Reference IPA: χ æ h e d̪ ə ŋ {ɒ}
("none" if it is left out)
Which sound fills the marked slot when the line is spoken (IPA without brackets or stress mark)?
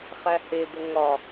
ɒ